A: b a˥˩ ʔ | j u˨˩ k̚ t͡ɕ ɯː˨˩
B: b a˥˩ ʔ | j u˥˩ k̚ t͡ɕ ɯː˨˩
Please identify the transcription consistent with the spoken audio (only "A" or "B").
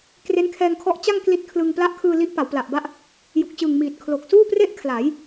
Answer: A